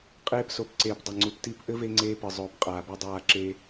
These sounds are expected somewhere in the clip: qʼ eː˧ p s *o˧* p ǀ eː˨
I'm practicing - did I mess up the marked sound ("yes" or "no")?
yes